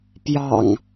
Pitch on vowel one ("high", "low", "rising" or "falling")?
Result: low